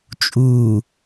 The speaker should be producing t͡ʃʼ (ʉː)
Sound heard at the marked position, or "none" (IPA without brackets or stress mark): uː